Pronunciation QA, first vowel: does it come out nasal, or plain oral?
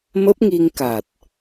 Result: oral